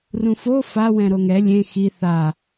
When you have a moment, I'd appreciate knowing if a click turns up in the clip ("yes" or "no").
no